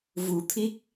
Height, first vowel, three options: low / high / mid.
high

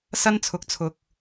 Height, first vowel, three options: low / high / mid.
low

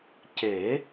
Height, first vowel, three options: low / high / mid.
mid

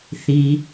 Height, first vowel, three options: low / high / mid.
high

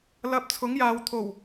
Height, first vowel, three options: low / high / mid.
low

